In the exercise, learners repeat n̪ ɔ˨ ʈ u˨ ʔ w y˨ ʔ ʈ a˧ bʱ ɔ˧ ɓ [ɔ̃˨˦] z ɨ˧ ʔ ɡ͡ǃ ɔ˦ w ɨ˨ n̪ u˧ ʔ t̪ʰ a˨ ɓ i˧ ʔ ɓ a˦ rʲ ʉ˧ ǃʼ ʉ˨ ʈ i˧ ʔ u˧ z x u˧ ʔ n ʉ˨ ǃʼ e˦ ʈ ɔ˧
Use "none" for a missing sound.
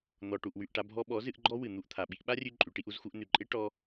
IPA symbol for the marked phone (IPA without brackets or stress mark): ɔ˨˦